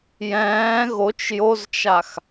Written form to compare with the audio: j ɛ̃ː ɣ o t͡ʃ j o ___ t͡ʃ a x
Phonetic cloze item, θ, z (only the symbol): z